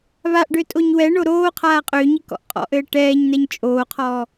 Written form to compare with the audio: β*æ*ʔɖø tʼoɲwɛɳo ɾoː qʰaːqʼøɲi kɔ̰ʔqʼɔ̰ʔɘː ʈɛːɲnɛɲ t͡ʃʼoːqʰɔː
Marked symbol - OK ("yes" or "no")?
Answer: no